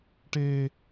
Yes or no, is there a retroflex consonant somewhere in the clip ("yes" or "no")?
yes